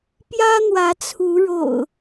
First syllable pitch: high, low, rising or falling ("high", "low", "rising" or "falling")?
high